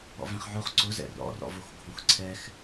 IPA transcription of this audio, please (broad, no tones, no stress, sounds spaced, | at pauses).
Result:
ɔ̰ v ɛ̃ χ ʕ o χ ǀ ʊ z ɛ̰ r ɔ̰ r ɔ̰ v o x ɡʱ õ x ǀʰ ɛ x